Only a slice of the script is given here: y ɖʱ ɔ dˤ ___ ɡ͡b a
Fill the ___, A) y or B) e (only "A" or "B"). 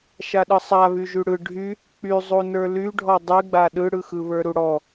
A